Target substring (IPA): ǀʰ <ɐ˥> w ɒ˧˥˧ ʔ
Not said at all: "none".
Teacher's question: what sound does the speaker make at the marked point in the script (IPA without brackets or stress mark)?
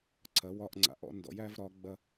ɐ˩˥